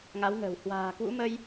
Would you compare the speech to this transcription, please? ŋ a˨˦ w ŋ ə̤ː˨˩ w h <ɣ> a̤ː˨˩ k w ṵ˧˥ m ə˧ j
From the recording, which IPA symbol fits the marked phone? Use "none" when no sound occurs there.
w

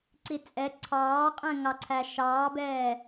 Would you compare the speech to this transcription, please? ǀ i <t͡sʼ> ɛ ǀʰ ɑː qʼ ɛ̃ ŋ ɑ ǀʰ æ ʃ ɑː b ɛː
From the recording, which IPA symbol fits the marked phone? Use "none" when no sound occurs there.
t͡sʼ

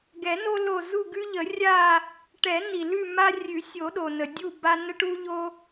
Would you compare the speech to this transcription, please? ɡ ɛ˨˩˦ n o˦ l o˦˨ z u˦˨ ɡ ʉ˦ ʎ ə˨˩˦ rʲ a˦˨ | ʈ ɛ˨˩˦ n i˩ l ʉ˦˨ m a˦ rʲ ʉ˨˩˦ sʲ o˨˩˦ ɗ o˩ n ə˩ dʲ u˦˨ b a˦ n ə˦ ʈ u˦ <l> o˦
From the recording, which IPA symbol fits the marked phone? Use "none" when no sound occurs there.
ʎ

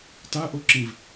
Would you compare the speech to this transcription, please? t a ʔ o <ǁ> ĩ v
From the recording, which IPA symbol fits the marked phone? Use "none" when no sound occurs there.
ǁ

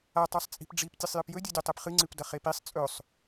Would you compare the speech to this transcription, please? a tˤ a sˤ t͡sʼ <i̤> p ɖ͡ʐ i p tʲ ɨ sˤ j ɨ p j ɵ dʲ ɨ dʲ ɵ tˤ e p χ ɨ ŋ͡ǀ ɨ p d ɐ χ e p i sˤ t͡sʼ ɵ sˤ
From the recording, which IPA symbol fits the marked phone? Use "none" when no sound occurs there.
i̤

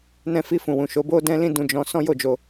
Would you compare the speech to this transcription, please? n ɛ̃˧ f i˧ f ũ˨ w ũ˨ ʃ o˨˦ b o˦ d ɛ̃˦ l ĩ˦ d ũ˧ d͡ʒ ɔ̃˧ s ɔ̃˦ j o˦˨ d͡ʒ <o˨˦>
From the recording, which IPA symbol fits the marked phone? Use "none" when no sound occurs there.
o˧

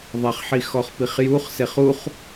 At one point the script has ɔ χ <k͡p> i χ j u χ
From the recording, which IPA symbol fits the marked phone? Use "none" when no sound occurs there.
p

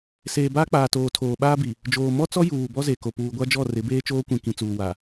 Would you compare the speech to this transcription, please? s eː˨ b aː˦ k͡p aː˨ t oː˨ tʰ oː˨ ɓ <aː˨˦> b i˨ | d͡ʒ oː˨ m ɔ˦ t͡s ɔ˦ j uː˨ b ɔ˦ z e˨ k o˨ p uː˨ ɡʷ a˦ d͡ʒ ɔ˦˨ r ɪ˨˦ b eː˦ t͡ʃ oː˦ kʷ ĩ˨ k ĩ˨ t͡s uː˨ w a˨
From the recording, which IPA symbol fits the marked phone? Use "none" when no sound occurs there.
aː˦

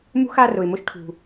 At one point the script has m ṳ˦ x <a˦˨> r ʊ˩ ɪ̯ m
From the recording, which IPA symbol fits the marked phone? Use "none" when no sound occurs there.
a˦˨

